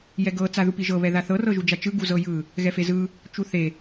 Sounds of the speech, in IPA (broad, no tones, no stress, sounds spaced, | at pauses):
j ɛ ɡ ɤ t͡s a ð u p i ʒ ɤ β ɛ ð a θ ɤ r ɤ ʒ u d͡ʒ a t͡ʃ ɯ ɡ u z ɤ j ɯ | ɣ ɛ f e z ɯ | t͡ʃ u θ e